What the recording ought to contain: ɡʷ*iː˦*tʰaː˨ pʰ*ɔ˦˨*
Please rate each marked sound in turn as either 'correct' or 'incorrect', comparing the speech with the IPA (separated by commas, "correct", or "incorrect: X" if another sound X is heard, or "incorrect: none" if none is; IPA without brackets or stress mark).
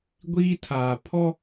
correct, incorrect: ɔ˦